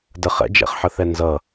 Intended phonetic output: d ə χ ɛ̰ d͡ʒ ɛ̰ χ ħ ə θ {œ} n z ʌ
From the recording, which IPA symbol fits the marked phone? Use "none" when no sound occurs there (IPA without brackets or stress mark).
ɛ